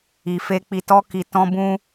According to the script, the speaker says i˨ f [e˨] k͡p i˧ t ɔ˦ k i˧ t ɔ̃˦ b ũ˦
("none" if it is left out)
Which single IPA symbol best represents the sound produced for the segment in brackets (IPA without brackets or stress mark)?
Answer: e˧